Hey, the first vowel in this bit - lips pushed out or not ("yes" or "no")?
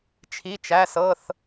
no